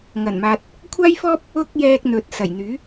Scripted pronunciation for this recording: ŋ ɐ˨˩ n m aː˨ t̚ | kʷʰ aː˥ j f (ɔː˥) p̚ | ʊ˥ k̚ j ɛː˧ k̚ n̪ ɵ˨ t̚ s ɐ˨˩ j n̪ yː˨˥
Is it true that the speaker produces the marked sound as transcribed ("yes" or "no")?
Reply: yes